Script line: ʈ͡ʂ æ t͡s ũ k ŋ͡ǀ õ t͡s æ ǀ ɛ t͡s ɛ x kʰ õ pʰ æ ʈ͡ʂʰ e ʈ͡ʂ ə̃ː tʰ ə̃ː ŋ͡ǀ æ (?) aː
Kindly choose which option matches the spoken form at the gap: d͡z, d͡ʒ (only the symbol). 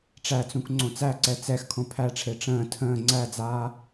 d͡z